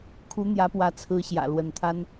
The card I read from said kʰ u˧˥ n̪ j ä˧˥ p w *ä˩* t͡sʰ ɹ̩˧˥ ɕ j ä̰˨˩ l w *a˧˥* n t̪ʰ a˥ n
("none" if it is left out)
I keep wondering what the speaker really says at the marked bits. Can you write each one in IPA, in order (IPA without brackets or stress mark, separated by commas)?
ä˧˥, ə˧˥